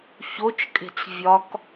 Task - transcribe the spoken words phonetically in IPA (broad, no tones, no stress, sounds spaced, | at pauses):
ç o t͡ʃ kʼ e̤ t͡s vʲ ɒ k